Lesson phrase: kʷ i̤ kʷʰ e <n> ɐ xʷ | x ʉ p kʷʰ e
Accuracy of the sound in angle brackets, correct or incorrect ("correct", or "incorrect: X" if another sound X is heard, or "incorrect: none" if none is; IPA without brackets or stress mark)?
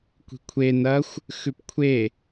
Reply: correct